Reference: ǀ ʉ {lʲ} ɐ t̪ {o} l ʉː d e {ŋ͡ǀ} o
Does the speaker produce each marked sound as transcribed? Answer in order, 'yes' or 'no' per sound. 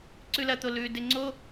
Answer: no, yes, yes

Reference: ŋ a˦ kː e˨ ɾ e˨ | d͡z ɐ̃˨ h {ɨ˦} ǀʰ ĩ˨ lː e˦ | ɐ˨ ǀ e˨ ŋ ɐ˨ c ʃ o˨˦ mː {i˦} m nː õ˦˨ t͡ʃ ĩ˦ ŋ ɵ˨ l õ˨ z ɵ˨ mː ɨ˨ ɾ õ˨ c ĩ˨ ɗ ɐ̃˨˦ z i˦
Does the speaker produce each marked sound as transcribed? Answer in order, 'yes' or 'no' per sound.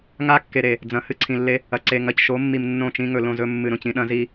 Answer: yes, no

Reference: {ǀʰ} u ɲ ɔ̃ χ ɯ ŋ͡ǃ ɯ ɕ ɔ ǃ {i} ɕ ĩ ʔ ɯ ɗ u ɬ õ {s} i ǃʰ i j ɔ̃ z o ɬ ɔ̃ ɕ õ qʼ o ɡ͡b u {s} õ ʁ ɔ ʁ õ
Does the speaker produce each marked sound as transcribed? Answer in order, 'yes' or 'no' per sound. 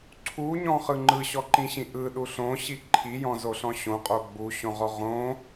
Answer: yes, no, no, no

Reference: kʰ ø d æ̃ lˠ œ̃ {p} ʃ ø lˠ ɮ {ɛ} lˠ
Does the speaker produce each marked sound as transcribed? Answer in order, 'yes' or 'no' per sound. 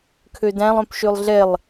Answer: yes, yes

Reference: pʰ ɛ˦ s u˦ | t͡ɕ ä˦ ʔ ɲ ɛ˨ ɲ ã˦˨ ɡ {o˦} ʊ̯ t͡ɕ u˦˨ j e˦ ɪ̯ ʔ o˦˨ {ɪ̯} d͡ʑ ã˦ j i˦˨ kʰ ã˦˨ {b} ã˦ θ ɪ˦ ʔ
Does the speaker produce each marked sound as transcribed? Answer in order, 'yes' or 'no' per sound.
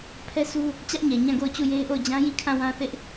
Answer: no, no, no

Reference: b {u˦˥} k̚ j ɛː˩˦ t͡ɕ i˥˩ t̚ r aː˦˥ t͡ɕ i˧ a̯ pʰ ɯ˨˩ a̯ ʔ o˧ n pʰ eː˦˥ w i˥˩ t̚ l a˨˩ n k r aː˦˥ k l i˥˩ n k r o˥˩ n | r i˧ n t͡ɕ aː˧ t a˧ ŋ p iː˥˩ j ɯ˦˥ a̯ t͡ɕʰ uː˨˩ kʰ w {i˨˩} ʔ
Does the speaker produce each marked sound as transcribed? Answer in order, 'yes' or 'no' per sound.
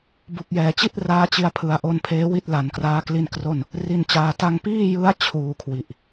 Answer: no, yes

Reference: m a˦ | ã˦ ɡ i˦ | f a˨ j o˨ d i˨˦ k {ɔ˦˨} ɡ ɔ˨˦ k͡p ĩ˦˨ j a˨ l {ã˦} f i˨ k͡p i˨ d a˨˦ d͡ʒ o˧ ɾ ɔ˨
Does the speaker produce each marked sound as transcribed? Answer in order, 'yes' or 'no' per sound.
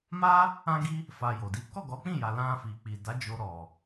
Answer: yes, no

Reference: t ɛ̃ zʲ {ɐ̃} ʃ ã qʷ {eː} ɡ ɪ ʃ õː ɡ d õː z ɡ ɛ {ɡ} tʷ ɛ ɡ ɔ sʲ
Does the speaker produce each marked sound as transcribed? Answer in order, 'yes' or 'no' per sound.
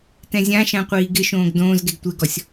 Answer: no, no, yes

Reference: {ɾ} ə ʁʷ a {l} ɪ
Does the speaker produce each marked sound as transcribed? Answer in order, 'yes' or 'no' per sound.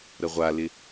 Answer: yes, yes

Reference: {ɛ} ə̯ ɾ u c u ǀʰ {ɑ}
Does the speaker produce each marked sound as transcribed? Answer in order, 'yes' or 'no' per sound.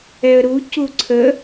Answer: yes, no

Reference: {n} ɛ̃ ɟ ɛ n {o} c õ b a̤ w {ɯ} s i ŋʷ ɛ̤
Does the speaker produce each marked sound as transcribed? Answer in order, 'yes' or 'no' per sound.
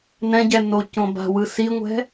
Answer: yes, yes, yes

